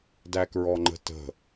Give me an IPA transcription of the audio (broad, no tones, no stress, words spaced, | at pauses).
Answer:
dækɹɔŋ͡ǃə̤tə̤